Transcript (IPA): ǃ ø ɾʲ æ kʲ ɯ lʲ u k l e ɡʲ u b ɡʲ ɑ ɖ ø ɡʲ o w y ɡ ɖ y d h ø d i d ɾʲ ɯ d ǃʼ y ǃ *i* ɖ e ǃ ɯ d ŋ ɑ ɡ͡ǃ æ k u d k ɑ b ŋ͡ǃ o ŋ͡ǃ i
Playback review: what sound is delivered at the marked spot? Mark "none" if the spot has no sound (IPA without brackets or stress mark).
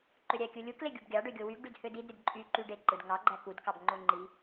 y